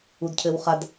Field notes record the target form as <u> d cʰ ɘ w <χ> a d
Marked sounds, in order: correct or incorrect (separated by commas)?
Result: correct, correct